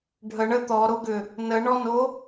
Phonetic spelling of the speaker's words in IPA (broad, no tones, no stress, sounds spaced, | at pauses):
ɖʱ ə ɳ ə t̪ ɔ ɾ o ɡ ʏ | n ə ɳ ɔ n o